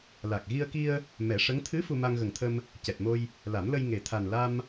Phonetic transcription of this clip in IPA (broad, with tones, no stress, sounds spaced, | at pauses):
l a˨˩ k̚ ɣ i˧ ə̯ k i˧ ə̯ | m ɛ˨˩˦ ʂ ə˧˥ ŋ t̪ʰ ɨ˧˥ f u˧ m a˧ ŋ ɣ ə˨˩ ŋ t̪ʰ ə˧ m | c ɛ˨˩ t̚ m o˧ j | l a˨˩˦ m l ə˧ j ŋ e˨˩ t̪ʰ a˨˩ n l a˧ m